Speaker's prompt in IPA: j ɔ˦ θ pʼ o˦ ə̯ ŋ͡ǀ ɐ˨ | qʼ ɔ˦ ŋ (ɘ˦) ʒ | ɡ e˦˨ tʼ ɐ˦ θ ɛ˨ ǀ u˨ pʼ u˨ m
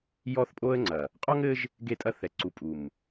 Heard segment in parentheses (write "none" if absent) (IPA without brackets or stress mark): ɘ˦